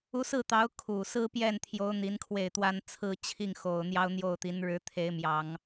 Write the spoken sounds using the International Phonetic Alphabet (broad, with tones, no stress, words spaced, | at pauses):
u˧˥sɹ̩˥˩t̪ɑ˧˥ʊ̯ kʰu˨˩ sɹ̩˥pjɛ˥˩nt̪ʰjo˧˥ʊ̯ n̪i˧˥nkʰwe˥˩ɪ̯t̪wa˥n t͡sʰɹ̩˥t͡ɕʰi˥˩ŋxo˨˩ʊ̯ n̪jɑ˥ʊ̯n̪jo˥˩ʊ̯t̪i˧˥n ɻɻ̩˧˥t̪ʰe˧˥ɪ̯mjɑ˨˩˦ŋ